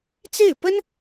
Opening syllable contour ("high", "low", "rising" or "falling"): falling